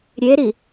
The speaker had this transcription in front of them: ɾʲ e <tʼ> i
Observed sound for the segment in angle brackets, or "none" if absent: ɾ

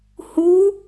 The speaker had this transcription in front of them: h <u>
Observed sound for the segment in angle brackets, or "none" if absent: u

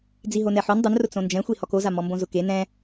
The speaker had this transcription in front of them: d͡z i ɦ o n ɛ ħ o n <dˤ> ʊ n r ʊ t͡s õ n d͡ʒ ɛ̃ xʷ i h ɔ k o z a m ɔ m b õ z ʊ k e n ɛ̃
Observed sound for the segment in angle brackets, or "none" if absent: dˤ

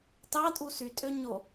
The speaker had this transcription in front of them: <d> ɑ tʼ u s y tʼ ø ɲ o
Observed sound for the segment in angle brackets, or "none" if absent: t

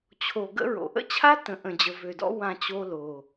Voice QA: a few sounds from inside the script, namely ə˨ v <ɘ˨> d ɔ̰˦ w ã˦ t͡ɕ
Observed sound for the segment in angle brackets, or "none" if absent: ø˨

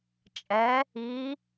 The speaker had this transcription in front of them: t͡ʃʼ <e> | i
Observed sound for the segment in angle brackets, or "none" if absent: ɛ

